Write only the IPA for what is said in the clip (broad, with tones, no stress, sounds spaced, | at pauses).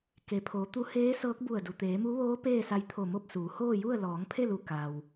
k e˩ pʰ oː˩˧ t̪ u˧ h eː˧˥ s ɤː˧˥ k̚ b u˧˩ ə̯ d u˩ t̪ eː˩˧ m u˧˥ ʋ oː˧˥ p eː˥˨ s a˧ j t̪ʰ o˧˩ m o˥˨ p̚ s uː˩˧ h oː˥˨ j u˥˨ ə̯ l ɔː˩˧ ŋ pʰ e˥˨ l u˧˩ k a˩ w